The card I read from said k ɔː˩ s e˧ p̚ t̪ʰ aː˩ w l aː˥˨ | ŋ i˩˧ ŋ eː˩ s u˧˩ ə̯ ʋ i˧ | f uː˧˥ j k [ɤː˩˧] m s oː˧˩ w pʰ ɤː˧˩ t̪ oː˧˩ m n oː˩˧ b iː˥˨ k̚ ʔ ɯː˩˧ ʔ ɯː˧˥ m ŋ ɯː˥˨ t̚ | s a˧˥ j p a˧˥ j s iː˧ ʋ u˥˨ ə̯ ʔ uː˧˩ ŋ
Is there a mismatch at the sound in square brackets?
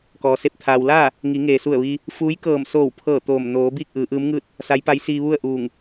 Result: yes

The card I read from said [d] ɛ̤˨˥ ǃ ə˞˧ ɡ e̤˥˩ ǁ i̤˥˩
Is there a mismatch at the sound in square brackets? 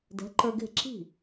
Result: no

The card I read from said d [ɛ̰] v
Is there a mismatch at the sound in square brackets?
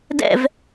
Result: no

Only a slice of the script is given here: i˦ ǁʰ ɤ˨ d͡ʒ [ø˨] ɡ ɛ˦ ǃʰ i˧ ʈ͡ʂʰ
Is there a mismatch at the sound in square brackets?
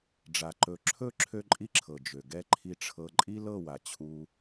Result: no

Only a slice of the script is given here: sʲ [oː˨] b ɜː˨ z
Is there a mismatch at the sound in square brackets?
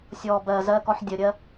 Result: yes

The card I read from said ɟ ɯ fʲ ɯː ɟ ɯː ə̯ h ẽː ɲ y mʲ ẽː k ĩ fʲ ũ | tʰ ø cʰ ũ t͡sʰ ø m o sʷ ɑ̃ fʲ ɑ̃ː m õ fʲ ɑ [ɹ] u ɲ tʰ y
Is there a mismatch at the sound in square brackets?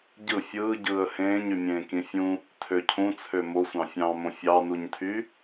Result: yes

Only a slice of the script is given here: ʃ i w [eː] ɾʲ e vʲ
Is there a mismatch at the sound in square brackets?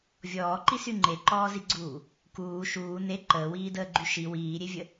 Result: yes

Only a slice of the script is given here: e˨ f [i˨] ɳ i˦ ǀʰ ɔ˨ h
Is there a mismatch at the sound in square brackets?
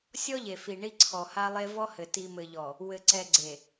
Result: no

